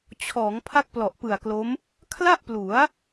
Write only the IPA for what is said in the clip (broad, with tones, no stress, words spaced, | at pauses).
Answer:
t͡ɕʰɔː˩˦ŋ pʰa˥˩k̚plɔ˨˩ʔpɯ˨˩a̯klo˦˥m | kʰla˥˩ʔplu˩˦a̯